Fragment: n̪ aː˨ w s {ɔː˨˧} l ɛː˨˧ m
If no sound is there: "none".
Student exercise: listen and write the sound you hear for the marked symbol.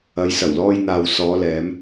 ɔː˨˧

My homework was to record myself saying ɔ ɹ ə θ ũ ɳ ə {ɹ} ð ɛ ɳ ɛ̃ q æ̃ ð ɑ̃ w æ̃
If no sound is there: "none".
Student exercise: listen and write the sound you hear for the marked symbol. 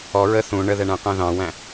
none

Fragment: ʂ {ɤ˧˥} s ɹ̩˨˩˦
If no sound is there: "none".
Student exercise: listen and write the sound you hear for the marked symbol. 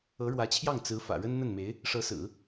ɤ˧˥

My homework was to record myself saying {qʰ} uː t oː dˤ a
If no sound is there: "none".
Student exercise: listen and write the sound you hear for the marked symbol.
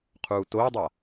qʰ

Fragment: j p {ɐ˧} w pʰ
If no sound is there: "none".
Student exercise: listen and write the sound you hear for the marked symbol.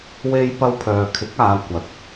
ɐ˧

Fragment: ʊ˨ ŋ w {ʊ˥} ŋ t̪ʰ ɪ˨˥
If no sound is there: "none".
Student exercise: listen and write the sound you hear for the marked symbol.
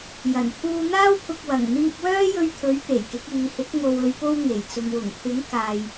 ʊ˨˩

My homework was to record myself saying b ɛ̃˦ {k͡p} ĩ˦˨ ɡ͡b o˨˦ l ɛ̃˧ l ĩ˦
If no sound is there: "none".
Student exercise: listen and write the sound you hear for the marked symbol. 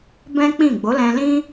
k͡p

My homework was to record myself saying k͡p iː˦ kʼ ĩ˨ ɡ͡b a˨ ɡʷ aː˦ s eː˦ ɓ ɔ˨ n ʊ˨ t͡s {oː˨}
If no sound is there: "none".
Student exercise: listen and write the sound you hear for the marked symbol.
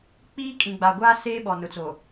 o˨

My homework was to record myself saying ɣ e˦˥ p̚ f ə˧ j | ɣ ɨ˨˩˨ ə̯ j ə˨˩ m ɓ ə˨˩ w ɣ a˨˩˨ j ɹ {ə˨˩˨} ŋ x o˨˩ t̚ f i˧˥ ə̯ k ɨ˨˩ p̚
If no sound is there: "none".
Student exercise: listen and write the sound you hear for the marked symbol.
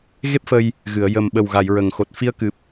ə˨˩˨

